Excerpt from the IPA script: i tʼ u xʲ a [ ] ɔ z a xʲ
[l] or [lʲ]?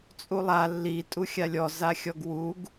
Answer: lʲ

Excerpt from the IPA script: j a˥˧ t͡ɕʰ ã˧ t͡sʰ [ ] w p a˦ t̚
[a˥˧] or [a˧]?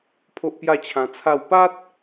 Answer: a˥˧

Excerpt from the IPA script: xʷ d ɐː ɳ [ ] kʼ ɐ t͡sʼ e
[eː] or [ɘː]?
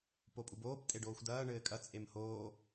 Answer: ɘː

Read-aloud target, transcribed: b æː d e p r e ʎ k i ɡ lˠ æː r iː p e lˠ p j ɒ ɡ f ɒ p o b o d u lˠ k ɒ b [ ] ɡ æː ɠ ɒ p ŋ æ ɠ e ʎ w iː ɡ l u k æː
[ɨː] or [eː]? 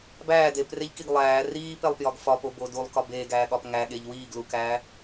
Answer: eː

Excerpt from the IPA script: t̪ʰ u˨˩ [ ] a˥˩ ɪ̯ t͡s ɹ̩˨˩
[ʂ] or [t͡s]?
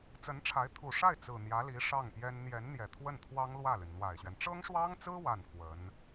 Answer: ʂ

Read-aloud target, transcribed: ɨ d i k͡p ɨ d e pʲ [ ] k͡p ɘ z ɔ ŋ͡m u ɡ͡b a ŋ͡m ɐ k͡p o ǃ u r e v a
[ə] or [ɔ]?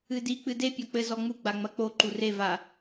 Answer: ɔ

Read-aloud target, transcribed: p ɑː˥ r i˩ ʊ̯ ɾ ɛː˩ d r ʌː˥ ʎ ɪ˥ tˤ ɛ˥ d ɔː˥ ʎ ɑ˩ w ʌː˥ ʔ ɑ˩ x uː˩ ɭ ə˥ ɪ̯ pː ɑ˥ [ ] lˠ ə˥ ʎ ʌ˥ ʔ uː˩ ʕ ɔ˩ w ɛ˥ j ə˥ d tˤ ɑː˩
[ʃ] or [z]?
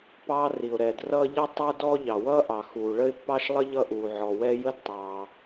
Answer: ʃ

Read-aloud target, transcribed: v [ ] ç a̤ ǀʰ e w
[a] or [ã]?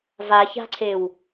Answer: a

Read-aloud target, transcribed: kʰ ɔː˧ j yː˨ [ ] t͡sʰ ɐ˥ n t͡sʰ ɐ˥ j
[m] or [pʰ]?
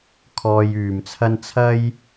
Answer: m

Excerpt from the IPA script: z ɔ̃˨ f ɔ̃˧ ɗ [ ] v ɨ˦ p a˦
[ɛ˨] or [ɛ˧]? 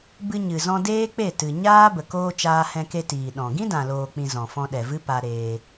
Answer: ɛ˨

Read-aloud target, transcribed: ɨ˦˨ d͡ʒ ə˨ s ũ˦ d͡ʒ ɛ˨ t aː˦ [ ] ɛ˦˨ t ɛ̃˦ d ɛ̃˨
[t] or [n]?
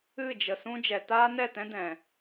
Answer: n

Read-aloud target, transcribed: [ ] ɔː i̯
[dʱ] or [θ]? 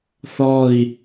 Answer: θ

